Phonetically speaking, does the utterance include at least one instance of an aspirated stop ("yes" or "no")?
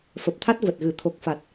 yes